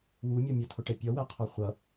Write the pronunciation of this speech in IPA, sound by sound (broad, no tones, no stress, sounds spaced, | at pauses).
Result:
w u mʲ ʌ mʲ ə tʰ ʊ ʈ ɛ pʲ ʌ w æ qʰ ɔ χʷ ʌ